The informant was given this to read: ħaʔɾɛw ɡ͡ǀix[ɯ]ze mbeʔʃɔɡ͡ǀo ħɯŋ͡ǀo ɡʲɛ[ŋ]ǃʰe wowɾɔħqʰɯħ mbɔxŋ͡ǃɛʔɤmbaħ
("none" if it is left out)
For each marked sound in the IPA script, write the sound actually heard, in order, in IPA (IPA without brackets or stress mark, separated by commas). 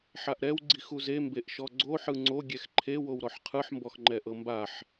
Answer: u, x